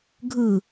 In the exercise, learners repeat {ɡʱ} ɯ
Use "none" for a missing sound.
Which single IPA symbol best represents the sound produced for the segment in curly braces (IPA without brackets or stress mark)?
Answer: ɡʱ